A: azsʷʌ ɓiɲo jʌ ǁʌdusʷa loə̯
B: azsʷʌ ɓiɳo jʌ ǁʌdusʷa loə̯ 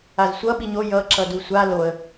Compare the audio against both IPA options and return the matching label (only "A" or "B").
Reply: A